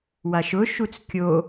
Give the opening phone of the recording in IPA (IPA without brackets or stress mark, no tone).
w